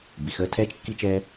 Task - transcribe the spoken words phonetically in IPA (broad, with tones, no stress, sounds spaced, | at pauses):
b i˩ x əː˧ tʰ ɛː˧ t͡ʃ kː i˧ t͡ʃ ɛː˧